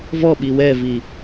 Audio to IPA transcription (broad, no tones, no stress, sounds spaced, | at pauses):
v ɔ ɓ i w ɛ v i